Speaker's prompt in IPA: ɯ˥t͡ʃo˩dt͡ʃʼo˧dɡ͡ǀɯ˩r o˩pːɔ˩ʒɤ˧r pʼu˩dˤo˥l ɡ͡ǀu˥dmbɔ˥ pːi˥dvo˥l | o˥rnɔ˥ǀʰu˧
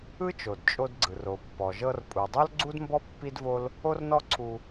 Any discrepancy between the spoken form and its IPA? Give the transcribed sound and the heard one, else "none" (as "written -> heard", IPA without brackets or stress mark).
none